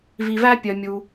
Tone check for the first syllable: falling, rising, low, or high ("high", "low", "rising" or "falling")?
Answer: low